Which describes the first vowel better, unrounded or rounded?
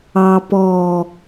unrounded